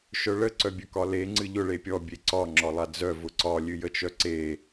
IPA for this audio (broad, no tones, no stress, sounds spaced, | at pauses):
ʃ œ ɭ ə ǀ œ bʲ œ k ɒ l e ŋ͡ǀ ɨ ʎ ʊ ɭ e pʲ ɔ bʲ e ǀ ɒ ŋ͡ǁ ɒ lˠ a d͡z œ v ʊ ǀ ɒ lʲ ɨ j ə t͡ʃ œ ǀ e